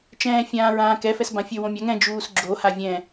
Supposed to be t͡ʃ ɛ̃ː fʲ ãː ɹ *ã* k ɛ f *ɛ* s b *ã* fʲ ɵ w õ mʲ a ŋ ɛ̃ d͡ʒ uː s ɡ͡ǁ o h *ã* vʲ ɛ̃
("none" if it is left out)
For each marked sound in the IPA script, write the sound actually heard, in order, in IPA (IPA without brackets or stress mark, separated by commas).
ãː, ɛ, ã, a